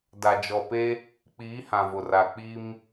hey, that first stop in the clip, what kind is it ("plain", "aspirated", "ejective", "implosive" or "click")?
plain